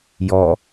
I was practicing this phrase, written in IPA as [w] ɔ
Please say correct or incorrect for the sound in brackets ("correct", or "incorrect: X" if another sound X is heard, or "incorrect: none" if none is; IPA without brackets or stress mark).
incorrect: j